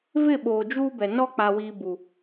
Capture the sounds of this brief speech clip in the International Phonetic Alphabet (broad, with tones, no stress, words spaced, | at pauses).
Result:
vɪ˦˨ɓoː˨ d͡ʒuː˦bɛ˨ nɔ˦k͡pa˨wiː˨ bu˨